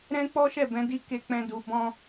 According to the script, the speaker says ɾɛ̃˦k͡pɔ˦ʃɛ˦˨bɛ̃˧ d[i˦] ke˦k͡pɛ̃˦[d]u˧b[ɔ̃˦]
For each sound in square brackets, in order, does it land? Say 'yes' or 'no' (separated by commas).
yes, yes, yes